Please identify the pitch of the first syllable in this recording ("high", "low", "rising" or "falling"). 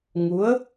rising